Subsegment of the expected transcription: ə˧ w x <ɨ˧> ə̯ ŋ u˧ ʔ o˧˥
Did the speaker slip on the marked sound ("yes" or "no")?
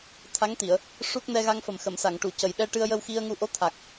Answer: yes